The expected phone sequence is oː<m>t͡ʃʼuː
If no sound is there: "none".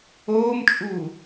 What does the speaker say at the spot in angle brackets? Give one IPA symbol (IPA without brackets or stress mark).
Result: m